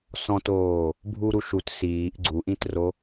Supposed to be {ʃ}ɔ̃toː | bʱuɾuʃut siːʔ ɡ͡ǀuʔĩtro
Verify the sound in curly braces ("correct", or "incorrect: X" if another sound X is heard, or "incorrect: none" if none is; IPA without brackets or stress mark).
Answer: incorrect: s